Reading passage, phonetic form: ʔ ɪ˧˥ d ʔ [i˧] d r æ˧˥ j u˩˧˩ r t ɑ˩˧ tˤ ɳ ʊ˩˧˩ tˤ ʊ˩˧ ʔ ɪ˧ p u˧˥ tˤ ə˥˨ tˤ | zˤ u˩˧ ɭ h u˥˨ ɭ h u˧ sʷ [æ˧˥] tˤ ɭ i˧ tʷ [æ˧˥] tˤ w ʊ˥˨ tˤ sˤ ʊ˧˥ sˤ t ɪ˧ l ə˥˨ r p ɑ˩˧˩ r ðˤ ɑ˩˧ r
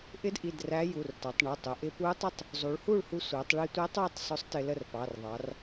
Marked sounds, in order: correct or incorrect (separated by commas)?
incorrect, incorrect, correct